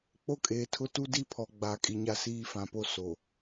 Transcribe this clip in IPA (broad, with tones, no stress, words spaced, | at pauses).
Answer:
k͡po˦kʼeː˨tʰʊ˦ tu˦di˦pʰɔ˨ ɡ͡ba˨ kʼi˨ɲa˦siː˦ fã˨po˦ so˨